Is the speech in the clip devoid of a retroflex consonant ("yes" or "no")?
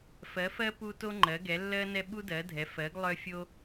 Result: yes